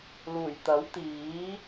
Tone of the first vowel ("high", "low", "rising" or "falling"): low